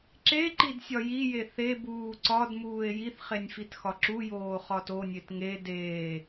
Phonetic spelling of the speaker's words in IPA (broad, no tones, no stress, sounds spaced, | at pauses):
ǁ e ǃ i d sʲ ɒ j i j e θ e b uː ǀ ɒ d m uː e̯ j i θ χ e nʲ f i t x ɒ ǁ u j oː χ ɒ t o nʲ e t ŋ e d eː